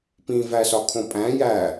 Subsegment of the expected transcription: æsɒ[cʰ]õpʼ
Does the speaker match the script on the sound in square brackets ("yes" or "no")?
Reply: no